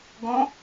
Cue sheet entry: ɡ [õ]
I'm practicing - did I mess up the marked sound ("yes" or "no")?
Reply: no